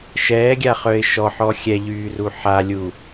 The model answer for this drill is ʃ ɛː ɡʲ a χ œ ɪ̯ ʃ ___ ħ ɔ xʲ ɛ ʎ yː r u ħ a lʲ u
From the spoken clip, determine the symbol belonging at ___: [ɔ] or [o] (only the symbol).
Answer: ɔ